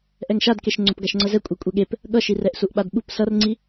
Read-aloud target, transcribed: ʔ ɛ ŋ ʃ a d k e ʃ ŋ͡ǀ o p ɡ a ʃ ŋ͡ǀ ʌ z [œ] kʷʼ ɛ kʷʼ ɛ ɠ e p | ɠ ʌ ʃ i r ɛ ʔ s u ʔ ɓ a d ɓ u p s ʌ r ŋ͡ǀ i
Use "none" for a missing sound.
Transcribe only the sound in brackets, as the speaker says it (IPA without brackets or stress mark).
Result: ɛ